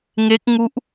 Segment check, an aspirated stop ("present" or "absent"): absent